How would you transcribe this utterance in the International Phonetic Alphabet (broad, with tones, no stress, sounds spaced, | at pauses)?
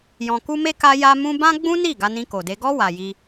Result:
j ɔ̃˧ k u˦ m e˦ k a˦ j a˦ m ũ˦ b ã˦ ɡ͡b ũ˦ n i˦˨ ɡ a˧ n ĩ˧ k o˨ d e˧ ɡ ɔ˦ w a˧ j i˦